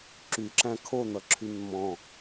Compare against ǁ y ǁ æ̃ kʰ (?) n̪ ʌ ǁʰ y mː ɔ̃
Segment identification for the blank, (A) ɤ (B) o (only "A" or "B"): B